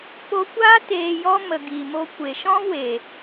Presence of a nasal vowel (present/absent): present